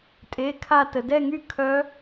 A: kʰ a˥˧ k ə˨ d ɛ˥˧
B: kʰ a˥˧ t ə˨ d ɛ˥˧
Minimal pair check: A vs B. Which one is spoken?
B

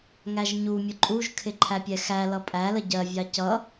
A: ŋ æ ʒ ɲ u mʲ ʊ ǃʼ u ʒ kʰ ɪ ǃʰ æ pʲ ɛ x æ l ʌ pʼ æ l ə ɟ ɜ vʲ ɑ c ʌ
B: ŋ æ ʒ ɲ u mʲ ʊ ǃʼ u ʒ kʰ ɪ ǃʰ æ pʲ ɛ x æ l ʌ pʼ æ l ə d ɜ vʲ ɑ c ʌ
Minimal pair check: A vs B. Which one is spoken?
A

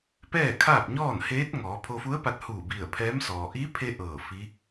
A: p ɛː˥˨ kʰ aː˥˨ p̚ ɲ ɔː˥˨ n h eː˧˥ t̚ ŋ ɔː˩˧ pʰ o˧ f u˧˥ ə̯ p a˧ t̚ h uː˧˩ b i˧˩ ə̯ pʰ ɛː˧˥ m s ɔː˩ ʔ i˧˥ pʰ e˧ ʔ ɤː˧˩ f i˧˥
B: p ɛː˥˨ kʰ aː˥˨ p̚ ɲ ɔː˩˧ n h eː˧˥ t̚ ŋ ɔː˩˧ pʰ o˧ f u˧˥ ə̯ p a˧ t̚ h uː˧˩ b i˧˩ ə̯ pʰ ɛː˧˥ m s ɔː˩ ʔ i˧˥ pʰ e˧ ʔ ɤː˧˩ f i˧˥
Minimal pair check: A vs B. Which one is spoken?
A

